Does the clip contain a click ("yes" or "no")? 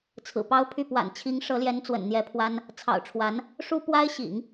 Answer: no